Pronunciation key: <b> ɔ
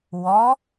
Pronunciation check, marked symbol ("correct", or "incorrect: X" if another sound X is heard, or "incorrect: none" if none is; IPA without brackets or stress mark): incorrect: w